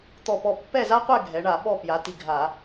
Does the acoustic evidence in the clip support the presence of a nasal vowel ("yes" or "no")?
no